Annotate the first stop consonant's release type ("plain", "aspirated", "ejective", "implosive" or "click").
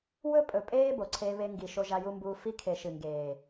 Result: ejective